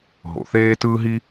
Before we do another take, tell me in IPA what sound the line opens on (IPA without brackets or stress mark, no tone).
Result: ɦ